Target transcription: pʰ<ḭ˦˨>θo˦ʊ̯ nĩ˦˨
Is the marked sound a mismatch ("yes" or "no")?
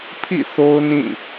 no